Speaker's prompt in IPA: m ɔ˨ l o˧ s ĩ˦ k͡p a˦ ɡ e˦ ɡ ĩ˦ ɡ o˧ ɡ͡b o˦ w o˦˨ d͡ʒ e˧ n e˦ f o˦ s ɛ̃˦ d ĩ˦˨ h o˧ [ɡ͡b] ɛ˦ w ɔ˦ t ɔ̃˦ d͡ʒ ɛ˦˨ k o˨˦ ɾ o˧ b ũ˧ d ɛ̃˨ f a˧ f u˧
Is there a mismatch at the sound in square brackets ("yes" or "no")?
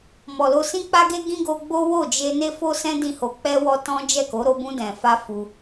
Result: yes